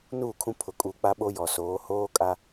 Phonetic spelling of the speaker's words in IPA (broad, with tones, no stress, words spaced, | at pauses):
nuː˦˨kʰũ˦ pʰʊ˨kʼuː˨k͡pa˦ ɓo˦jɔ˨soː˨˦ hoː˦kʼa˦